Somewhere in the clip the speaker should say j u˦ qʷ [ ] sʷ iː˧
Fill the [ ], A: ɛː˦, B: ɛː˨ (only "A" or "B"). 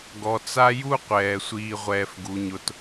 B